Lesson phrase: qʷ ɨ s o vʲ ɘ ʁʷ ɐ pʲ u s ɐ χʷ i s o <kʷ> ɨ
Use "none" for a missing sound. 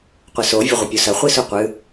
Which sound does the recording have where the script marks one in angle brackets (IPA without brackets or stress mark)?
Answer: qʷ